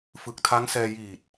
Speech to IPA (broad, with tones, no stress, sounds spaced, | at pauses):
f ɯ˨˩ k̚ tʰ a˦˥ ŋ s ɛː˧ j iː˨˩ t̚